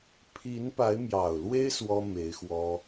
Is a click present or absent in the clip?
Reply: absent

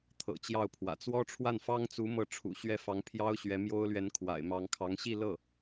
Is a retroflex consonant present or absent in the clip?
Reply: present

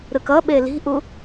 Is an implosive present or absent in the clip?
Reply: present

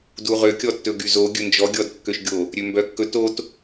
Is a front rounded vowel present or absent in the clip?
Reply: present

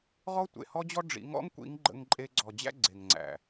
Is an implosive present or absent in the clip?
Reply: absent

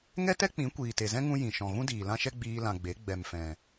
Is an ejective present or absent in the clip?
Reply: absent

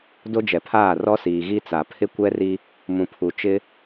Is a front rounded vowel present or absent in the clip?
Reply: absent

